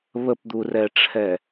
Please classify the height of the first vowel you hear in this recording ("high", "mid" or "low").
mid